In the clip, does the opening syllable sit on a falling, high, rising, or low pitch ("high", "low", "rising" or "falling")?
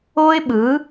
high